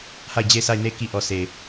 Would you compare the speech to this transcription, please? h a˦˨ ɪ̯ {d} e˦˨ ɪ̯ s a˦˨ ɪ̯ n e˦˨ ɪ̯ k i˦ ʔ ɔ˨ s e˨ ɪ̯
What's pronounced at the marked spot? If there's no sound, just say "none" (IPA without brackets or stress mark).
d͡ʑ